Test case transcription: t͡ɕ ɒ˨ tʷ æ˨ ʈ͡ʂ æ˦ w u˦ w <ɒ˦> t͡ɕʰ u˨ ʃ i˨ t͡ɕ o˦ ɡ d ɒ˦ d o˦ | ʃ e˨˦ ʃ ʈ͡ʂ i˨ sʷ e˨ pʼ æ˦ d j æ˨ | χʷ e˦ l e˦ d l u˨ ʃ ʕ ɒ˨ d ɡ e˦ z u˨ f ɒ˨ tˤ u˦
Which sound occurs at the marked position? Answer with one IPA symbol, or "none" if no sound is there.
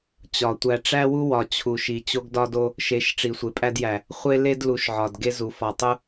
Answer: ɒ˨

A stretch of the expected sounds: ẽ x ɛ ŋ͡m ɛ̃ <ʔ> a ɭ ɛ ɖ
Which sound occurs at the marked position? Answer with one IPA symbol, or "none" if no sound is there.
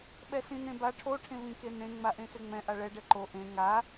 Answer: ʔ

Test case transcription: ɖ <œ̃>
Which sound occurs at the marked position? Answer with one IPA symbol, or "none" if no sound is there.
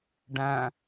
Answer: æ̃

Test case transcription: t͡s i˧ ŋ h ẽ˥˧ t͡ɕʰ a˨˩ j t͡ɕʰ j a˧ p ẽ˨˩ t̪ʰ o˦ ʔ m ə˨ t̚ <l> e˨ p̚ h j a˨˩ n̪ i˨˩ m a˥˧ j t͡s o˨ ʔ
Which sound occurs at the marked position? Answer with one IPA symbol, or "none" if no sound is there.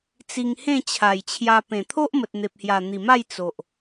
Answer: n̪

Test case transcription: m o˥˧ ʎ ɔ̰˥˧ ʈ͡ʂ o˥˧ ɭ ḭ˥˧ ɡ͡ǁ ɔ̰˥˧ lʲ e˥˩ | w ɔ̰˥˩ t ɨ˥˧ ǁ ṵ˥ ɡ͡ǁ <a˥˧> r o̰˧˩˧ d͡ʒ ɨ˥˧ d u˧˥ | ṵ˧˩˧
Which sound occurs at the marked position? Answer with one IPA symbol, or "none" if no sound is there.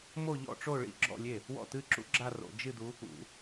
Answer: a˥˧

